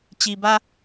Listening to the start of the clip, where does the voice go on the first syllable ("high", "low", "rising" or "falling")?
low